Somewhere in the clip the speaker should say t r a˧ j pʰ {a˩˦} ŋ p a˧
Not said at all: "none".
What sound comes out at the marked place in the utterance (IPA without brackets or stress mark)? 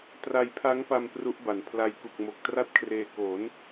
a˦˥